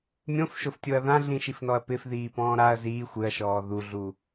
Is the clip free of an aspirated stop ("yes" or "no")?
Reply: yes